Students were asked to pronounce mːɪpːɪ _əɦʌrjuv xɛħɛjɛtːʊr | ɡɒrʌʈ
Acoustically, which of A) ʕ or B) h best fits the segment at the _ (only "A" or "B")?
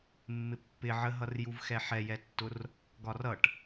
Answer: A